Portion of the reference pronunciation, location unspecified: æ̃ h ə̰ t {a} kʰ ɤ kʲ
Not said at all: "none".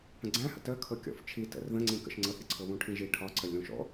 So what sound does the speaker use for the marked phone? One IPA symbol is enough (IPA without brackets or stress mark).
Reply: ə